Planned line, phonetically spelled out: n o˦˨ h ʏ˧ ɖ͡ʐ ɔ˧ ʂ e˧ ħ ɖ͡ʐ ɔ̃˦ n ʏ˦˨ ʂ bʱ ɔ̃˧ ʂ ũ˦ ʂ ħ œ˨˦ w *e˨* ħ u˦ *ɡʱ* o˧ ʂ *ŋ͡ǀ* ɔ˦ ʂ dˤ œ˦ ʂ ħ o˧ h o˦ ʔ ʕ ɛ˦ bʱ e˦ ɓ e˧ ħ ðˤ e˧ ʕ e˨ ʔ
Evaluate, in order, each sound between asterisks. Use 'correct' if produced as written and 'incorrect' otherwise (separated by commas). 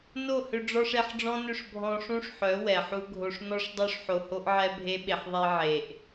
incorrect, correct, incorrect